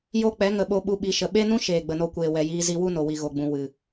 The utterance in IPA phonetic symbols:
j o˦ k͡p ɛ˨˦ ŋ ə˨ ɓ o˧ ɓ u˧ ɓ i˨ ʃ ə˨ ɓ e˦ n ũ˦ ʃ eː˨ ɡ͡b ə˨ n o˧ kʷ eː˨ w ɛ˨ j iː˧ z i˧ w u˦ n o˨ w i˨ ɣ o˨ ɡ͡b ũ˨ w ɨ˨

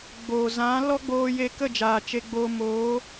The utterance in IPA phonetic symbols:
ɡ͡b oː˨ z ã˨˦ l ɔ˦ ɡ͡b oː˧ j e˧ k ə˦˨ d͡ʒ aː˨ t͡ʃ e˧ ɡ͡b oː˧ m oː˨˦

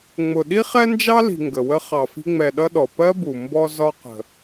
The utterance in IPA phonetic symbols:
ŋ͡m ʊ˨ ɗ i˥ χ ɛ˥ n d͡ʒ ɑ˥ l i̤˨ ŋ ɡ ə˩ w ə˦ χ ɑ˨ f i̤˦ ŋ͡m ɛ˨ ɗ ʌ˦ ɗ ɔ˩ p ɜ˥ b u˩ m b ɔ˦ z ɒ˦ q ə̤˨

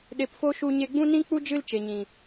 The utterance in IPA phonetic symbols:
ɗ e˧ p f o˦ ʃ u˧ ɲ e˧ ɡ͡b ũ˦ n ĩ˦ k͡p u˦ d͡ʒ ɨ˦ l t͡ʃ e˨ ɲ ĩ˨

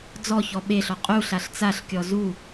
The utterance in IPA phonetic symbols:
d͡z ɔ ç ɔ ɓ e ɬ ɔ qʼ u ɬ a ɬ t͡s a ɬ kʲ ɔ z u

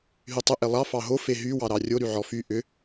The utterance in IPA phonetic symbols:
ɦ y tˤ ʏ ʔ e lˠ ɑ f ɑ ɦ o f e ɦ y w ɑ ɾ ɑ rʲ o ɾ y ʕ ɔ f y ʔ ʏ

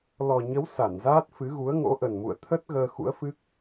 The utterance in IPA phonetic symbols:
l ɔ˨˩ ɲ ə˨˦ w s a˧˩ n z aː˦˥ t̚ f ɨ˨˦ ɣ u˨˦ ə̯ ŋ o̰˧˥ ʔ ə˨˩ n m ṵ˧˨ ə̯ t̪ʰ ə˦˥ t̚ ɣ əː˧ x ṵ˧˥ ə̯ f ɨ˦˥ k̚

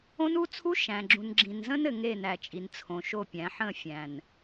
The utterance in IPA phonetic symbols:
õ˦ n u˦ t͡sʰ u˦ ʃ æ̃˨ ɡ͡ǁ ũ˨ n ɡ͡ǁ ĩ˨ n z ə̃˦ n ɘ˨ ŋ e˦˨ n æ˨ t͡ʃʼ i˨ n t͡sʰ õ˨ ʃ o˦˨ pʲ æ̃˨˦ ħ ə̃˦˨ fʲ æ̃˨ n

